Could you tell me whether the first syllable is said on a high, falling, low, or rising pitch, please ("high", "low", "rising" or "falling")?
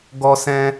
high